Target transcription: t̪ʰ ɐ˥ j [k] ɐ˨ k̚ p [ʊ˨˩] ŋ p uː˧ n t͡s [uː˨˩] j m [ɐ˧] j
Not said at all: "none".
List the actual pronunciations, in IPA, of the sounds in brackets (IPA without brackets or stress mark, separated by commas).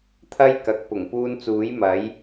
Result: k, ʊ˨˩, uː˨˥, ɐ˨˥